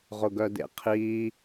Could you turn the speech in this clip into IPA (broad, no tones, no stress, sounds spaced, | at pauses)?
ʁ ʊ ɡ œ d ḛ qʰ i